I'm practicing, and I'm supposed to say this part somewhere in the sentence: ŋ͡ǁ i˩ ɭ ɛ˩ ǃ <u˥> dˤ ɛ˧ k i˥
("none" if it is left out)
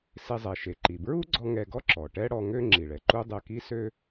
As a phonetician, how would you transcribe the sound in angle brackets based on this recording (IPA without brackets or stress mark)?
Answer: u˥